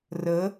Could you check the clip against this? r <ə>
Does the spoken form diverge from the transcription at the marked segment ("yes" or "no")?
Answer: no